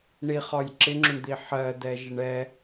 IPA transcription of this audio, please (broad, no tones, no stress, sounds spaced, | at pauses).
ɳ i χ ɒ j ǁ ɪ ŋ͡ǁ ʊ ɳ d̪ i ħ ɜ d ɛ ʒ ɪ ɳ ɛ